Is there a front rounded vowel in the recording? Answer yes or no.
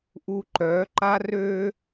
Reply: yes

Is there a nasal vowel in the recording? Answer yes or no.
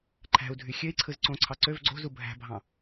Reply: yes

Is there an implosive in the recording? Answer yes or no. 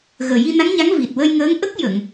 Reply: no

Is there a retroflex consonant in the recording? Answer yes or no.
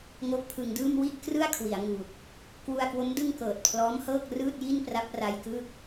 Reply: no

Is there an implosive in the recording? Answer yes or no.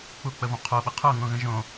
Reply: yes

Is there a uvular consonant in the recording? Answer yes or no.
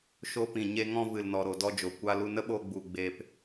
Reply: no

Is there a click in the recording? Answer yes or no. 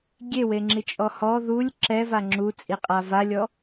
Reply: yes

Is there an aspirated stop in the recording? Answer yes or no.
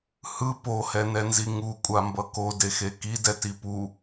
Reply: no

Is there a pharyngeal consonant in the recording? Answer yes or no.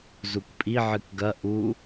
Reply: yes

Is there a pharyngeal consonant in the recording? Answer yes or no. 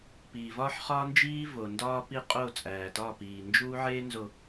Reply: yes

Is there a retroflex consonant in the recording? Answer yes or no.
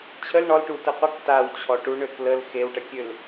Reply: yes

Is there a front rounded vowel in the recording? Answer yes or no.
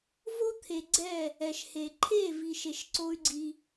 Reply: yes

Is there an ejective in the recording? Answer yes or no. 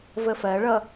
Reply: no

